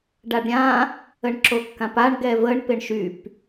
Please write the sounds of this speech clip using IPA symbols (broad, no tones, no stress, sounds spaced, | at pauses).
ɖ a ɖ ɾʲ ã | ə ɳ ǁ o kː ã p a ɳ ɡ ɛ v ə ɳ p ɪ ɳ ʃ y p